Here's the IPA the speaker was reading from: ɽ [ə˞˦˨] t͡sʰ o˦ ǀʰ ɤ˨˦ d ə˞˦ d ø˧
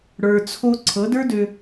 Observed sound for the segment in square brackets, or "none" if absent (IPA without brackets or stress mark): ə˞˧